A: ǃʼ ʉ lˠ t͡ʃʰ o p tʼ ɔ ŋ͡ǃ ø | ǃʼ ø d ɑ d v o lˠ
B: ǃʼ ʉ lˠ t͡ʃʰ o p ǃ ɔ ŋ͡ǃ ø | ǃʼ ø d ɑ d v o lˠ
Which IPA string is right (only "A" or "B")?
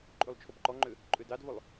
B